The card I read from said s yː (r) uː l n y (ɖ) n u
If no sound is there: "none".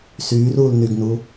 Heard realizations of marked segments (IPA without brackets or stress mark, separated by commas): r, ɡ